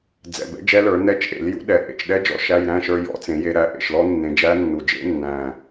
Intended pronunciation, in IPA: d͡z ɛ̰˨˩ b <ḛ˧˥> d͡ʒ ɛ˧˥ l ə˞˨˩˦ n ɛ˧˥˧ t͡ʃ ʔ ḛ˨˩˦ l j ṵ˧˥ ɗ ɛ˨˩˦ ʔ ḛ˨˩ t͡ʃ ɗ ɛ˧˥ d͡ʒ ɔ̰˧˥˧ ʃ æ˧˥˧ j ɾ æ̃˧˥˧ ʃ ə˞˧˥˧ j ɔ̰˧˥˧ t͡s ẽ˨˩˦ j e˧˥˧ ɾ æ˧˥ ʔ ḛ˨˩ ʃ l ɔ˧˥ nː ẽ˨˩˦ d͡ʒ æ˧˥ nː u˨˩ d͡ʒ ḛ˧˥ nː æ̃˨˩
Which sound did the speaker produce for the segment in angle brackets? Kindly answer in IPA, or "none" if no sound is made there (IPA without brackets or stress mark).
ɛ̰˧˥